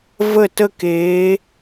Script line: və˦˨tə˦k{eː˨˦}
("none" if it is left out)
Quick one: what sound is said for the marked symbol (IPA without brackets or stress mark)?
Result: eː˨˦